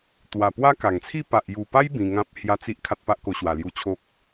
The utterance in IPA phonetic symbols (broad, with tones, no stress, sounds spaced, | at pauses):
t̪ w a˨˩ p w a˦ k a˨˩ ŋ t͡sʰ i˥˧ p a˨ ʔ j u˨˩ p a˦ j b ĩ˧ ŋ ã˦ p̚ h j a˦ t͡s i˦ ʔ kʰ a˦ t̚ p a˦ ʔ k o˧ ɕ w a˨˩ l j u˧ t͡ɕʰ o˦ k̚